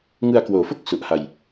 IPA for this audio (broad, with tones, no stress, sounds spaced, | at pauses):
ŋ ɯ˧ a̯ k w oː˩˦ f o˥˩ k̚ s u˨˩ ʔ h a˧ j